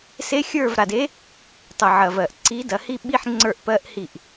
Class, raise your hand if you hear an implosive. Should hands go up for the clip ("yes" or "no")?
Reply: yes